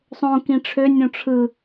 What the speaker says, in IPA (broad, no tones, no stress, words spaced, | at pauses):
sˤõ kĩʈ͡ʂʰø nʲõʈ͡ʂʰɯ